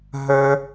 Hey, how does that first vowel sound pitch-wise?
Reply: high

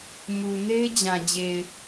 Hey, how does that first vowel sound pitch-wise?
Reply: low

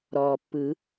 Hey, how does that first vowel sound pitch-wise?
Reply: low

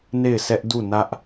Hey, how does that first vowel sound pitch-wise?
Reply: falling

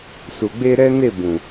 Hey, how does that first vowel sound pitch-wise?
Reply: low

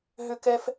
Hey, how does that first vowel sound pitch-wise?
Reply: high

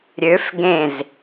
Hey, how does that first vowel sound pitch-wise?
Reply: rising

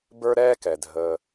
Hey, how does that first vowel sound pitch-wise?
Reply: high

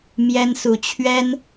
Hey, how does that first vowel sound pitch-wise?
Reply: high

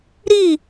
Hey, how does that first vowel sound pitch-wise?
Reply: falling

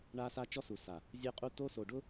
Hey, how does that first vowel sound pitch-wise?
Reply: high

